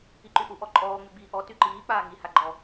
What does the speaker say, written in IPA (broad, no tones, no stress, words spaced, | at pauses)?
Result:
iǃyʔu ʔɔǃʼɔː ŋ͡myɡ͡biːʔɔ tyǃiː k͡paːŋi haɡ͡ǃɔ